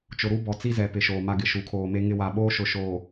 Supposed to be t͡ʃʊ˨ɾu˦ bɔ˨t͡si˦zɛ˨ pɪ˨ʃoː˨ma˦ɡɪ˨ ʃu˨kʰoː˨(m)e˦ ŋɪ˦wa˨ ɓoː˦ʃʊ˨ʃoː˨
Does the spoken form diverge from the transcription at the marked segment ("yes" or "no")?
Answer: no